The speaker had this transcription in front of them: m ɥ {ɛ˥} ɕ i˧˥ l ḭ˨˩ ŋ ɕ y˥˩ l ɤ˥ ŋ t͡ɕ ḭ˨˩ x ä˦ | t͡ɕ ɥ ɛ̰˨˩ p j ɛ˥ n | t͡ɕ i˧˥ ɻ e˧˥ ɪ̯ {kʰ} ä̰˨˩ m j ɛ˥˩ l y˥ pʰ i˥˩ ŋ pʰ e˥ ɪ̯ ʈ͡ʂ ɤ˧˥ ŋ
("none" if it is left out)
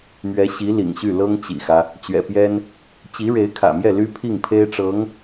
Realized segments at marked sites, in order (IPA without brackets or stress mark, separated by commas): ɛ˧˥, kʰ